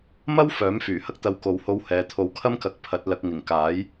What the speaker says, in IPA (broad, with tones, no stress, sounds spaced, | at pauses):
m ɐ˥ w f œː˨˥ m f yː˨˩ h ɐ˥ k̚ t̪ ɐ˧ w k o˨ w h o˧ w h ɛː˨ t̪ʰ o˨˥ w kʰ ɐ˥ m k ɐ˨˥ k̚ pʰ ɐ˨˥ t̚ l ɐ˧ k̚ ŋ ɪ˨˩ ŋ k aː˨˥ j